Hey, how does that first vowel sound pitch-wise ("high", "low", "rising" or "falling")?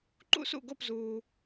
high